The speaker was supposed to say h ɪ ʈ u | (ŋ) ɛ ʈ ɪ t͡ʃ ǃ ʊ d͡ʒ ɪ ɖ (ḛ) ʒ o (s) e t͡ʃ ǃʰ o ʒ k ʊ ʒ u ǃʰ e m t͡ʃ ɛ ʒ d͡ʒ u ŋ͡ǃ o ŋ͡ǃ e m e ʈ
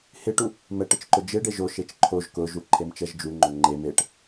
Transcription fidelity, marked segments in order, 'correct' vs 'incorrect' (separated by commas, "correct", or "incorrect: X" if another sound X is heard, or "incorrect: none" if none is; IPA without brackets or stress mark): incorrect: m, incorrect: e, incorrect: ʃ